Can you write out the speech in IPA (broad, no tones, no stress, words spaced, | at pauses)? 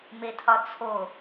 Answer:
metʰɒt͡sʰo